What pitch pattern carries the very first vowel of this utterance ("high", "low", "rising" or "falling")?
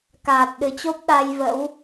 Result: low